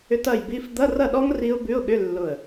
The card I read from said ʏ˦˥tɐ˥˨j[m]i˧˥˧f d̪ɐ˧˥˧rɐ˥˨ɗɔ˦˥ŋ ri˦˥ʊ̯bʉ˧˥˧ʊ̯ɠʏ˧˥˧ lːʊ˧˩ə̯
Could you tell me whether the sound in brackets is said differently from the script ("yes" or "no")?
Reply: yes